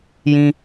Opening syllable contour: high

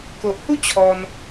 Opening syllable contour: low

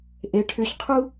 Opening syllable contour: rising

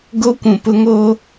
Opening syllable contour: high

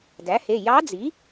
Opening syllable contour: rising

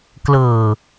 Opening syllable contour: low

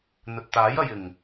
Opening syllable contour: low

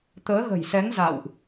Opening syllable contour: rising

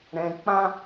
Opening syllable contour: low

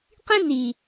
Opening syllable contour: high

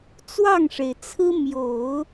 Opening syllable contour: falling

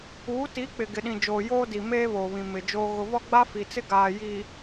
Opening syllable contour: rising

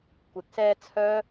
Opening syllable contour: low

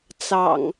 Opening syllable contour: low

